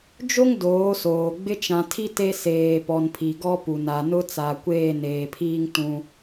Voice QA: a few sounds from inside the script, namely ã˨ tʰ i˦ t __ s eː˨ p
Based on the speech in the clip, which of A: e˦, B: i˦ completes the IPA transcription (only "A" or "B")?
A